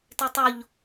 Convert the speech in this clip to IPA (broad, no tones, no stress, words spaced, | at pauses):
tetˤoʎ